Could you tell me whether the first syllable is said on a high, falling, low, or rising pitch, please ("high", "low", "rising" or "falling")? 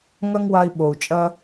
high